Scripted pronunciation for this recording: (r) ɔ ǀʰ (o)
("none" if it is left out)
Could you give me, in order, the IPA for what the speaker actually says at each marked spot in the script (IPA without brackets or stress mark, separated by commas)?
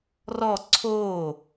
r, o